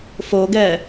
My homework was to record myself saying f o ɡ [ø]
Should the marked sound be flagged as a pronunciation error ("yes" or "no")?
yes